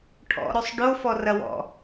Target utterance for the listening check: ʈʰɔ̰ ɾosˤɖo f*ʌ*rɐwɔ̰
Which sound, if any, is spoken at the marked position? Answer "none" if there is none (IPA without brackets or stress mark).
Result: ɔ